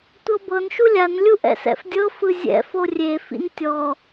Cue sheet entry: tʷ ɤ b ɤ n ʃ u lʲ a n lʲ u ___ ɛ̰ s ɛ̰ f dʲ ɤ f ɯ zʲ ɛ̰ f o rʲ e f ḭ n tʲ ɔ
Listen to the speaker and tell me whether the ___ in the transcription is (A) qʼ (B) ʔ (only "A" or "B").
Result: B